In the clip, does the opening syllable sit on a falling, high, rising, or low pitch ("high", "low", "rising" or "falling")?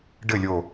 falling